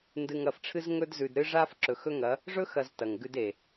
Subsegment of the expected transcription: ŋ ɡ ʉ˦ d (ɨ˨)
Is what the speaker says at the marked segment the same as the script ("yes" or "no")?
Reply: no